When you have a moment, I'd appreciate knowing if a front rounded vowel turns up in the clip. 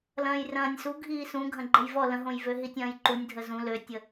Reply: yes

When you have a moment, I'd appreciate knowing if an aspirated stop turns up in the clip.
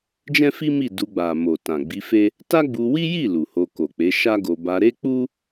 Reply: no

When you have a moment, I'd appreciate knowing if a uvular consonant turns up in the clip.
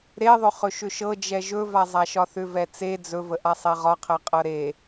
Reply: yes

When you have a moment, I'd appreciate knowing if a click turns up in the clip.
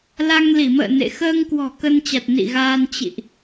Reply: no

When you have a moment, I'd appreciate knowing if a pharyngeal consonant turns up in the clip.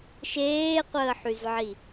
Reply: yes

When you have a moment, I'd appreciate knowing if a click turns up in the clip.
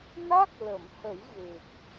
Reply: no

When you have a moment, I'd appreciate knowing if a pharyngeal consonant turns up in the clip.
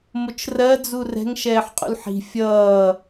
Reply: yes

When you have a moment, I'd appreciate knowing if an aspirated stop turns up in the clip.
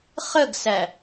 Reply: no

